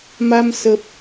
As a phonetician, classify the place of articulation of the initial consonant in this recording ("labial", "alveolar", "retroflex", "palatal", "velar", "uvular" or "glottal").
labial